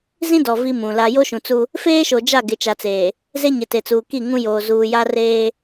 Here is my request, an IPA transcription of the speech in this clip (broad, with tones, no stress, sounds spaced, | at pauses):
z ĩ˦ d ɔ˨ v i˦ m ũ˨ l a˦ j o˦ ʃ ũ˨ t͡s u˦ | f eː˦ ʃ o˨ d͡ʒ a˦˨ ɡ ɪ˨ t͡ʃ a˨ t͡s eː˨ | z e˦ ɲ ɪ˨ t e˨ t͡s uː˨ k i˦˨ ŋ ũ˦ j oː˨ z uː˨ j a˦ r eː˦